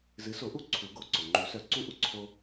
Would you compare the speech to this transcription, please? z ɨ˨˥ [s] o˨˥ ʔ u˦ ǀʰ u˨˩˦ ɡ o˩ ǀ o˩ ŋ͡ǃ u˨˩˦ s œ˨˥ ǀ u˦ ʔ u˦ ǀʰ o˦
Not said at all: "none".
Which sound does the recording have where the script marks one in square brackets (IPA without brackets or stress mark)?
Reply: s